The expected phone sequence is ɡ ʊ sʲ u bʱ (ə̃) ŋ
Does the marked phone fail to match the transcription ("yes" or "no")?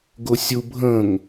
no